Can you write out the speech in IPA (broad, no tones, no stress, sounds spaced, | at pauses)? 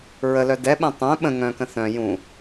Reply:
ɹ ə l œ d ɛ ɓ ɛ̃ tˤ œ̃ ɓ ə̃ ŋ œ̃ k ə̃ θ œ̃ j ũ